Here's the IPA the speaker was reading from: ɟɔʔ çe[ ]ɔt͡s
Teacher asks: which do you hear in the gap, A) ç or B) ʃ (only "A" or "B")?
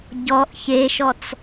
B